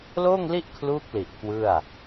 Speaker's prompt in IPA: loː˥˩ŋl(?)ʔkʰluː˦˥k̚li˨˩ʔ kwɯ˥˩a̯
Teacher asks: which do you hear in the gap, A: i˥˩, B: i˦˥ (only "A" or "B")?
A